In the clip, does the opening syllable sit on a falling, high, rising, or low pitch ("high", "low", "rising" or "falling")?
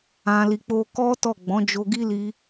low